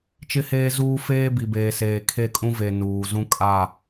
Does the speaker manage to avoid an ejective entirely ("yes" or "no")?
no